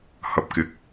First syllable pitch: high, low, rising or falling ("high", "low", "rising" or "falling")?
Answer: low